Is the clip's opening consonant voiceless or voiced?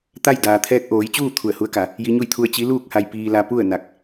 voiceless